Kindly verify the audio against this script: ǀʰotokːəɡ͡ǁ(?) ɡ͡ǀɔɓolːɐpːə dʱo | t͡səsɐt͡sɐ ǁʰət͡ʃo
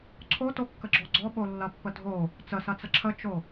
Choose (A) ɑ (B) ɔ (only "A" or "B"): B